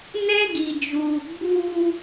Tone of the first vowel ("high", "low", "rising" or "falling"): high